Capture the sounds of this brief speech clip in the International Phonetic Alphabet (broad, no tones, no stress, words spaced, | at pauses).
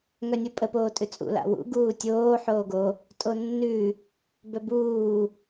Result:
ŋœnʲupʼə poːtʼʉt͡sʼṵ la̰wṵ ɡuːtʲoː ħoːɡo | tʼonːʉ | bœbuː